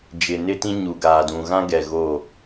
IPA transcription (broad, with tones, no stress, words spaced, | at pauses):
d͡ʒɪ˨nɪ˦tĩ˦ ɲu˨ɡaː˨dũ˨ɣã˦ ɡɛ˨ɣoː˦˨